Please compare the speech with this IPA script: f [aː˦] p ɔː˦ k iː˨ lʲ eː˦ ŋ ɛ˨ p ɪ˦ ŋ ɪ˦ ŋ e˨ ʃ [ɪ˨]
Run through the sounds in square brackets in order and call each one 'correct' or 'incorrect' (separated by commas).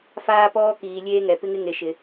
correct, correct